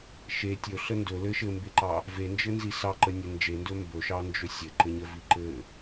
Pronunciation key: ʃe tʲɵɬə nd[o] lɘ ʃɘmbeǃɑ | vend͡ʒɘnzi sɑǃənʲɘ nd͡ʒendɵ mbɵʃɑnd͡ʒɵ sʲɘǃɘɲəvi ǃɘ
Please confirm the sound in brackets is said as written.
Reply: no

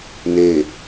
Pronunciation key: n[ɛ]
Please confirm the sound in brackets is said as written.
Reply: no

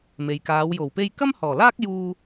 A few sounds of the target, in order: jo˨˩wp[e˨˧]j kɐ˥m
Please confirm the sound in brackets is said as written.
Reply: no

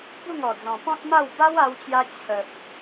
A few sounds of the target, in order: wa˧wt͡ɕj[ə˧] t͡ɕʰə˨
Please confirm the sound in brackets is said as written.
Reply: no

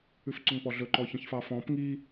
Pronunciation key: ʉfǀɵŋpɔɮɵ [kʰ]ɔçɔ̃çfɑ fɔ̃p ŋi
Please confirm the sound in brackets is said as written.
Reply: no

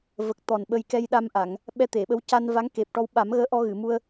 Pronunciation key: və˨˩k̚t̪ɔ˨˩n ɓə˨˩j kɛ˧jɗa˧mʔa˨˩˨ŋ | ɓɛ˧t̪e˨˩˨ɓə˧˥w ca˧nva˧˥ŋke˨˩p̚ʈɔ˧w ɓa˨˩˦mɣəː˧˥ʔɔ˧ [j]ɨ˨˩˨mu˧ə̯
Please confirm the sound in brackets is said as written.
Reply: no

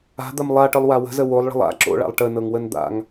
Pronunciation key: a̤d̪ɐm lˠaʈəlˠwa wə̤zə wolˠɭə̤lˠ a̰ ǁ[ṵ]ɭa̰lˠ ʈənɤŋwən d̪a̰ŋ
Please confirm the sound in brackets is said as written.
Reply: no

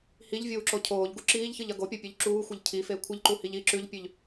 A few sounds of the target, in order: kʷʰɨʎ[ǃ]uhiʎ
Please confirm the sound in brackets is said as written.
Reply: yes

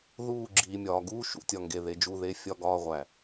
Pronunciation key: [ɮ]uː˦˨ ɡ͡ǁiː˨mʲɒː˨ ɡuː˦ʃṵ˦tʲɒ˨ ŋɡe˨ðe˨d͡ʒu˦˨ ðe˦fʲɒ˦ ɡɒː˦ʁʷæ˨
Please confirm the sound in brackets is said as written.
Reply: no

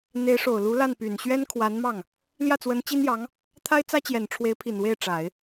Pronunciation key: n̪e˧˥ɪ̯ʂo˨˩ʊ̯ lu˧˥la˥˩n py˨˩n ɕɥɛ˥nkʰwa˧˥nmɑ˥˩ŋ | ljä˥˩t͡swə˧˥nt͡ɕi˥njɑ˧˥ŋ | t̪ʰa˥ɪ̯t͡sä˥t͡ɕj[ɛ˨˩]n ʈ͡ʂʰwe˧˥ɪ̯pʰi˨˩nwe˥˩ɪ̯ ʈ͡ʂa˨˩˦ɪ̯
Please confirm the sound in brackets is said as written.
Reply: yes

